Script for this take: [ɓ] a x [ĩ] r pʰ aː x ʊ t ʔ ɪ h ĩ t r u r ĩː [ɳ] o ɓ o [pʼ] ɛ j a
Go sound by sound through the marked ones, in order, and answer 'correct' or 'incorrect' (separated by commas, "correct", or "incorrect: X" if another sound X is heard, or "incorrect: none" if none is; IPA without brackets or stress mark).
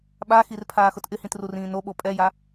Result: correct, incorrect: i, incorrect: n, correct